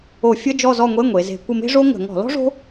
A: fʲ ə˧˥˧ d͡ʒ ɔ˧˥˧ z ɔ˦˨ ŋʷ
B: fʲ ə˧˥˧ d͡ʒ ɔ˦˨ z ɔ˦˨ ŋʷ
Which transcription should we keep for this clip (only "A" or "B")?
B